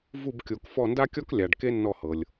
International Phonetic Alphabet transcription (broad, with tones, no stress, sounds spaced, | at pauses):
v u˦˨ b kʲ o˨˩˦ k f ɔ˦˨ n d a˥ kʲ ɔ˥ k lʲ a˨ ɖ k e˥ nː ɔ˦˨ h ɤ˨ lʲ